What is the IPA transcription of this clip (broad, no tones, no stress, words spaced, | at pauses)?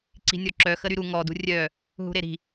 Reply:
ǀi̤nʲɔǁœ xəɾyɾu ŋɔ dṳrʲœ | ɦṳɾeɾi̤